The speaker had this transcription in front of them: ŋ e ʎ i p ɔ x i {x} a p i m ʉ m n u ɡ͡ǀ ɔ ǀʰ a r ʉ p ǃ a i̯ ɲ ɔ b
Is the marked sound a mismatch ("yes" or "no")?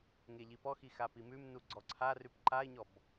no